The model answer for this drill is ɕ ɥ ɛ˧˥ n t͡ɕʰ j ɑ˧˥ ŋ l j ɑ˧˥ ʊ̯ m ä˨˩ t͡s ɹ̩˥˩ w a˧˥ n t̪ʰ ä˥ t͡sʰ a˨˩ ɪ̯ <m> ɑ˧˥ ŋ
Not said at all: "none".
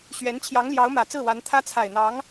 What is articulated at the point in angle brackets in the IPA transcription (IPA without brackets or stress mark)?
n̪